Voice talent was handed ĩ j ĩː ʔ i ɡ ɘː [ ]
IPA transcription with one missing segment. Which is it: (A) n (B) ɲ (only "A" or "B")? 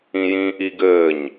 B